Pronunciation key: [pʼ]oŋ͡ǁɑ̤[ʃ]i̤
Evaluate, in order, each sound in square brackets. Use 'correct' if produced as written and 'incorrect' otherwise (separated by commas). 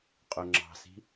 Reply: incorrect, incorrect